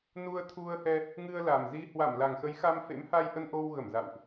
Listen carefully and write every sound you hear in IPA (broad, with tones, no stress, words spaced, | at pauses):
nu˧ə̯t̪ʰu˧ə̯hɛ˧ | ŋɨ˧ə̯la˨˩mzi˧ hwa˧˩mla˨˩ŋxə˨˦jxa˧m fḛ˧˥mha˧jʔə˧n ʔo˧w ɣə˧˩mza̰˧˨wʔ